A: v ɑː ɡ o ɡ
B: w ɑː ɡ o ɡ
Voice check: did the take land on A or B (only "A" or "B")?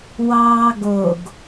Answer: B